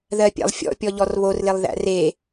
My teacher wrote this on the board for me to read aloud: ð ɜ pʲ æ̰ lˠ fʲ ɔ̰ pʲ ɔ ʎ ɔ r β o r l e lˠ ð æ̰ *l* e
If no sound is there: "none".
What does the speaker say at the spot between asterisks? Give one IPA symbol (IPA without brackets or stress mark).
r